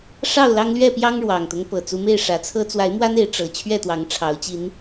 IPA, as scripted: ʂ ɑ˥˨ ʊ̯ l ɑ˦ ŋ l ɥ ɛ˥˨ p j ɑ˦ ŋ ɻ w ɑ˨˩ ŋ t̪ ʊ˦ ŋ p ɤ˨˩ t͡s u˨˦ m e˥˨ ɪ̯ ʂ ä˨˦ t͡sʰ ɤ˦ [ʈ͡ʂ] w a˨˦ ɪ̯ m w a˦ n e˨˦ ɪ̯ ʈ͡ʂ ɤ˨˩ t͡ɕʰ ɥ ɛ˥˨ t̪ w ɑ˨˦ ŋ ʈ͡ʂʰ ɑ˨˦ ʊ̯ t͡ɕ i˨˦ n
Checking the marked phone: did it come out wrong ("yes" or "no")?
yes